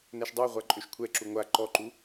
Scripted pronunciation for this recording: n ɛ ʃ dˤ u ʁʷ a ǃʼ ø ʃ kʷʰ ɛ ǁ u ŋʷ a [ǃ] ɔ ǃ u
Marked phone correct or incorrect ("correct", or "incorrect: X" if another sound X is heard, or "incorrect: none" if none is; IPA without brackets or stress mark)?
correct